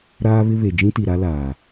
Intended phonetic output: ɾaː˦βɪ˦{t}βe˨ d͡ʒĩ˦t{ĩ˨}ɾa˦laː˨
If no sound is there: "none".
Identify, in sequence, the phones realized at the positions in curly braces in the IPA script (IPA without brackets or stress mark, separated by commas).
none, i˨